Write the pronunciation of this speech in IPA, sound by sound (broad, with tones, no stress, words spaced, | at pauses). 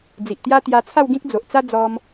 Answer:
d͡zi˨ʔt̪ja˦t̪ja˧ t͡sʰa˥˧wɡĩ˦k̚ d͡zo˨ʔt͡sa˦ d͡zɔ˧m